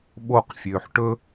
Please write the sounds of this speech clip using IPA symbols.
ɓ o q fʲ øː ħ ʈ ɵ

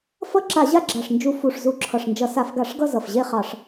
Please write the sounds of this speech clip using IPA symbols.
f ʌ˥˧ ǁ a˧˩˧ ʑ a˥˧ ɡ͡ǁ a˨˩ ʂ n d͡ʒ u˧˩˧ f u˨˩ ʂ z u˧˩˧ ǁʰ ʌ˨˩ ʂ n d͡ʒ ʌ˧˩˧ s a˧˩˧ f ɡ a˧˩˧ ʂ ɡ ʌ˥˧ z ʌ˨˩ f ʑ e˥˧ χ ɑ˧˩˧ ʂ

